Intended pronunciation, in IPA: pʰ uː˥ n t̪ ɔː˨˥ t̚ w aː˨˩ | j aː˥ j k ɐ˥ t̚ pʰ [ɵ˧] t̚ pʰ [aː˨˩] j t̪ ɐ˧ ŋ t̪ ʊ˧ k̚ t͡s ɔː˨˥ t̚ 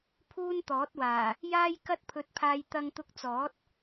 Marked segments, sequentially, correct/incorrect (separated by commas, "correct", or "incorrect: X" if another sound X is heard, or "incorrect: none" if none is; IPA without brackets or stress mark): correct, incorrect: aː˧